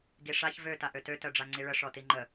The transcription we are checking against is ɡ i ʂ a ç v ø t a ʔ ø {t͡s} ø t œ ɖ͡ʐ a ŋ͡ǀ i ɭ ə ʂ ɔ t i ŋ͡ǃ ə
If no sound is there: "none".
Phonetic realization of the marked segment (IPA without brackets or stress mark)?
t